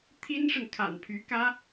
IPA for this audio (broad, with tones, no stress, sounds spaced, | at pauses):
t̪ʰ i˥ n ʂ ə˨ n kʰ a̰˨˩ n pʰ y˧˥ k ä˥